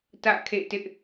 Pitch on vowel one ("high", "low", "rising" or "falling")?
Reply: falling